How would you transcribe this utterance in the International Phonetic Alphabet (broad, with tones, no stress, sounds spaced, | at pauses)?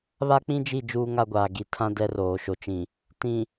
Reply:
β a˦ k͡p ĩ˦ d͡ʒ i˦˨ d͡ʒ uː˦ ŋ a˦ ɡʷ aː˨ ɡ i˨ tʰ ã˦ d ɛ˦ r oː˨ ʃ o˨ t͡ʃ ĩ˨ | t ĩ˨